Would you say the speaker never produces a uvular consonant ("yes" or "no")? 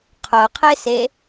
no